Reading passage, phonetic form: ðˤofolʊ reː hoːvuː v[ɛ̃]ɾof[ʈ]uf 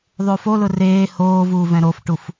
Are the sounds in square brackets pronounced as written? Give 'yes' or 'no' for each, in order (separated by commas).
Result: yes, yes